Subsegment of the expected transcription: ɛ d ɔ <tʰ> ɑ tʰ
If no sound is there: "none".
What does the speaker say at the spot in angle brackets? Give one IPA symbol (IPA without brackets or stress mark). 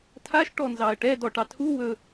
ʈ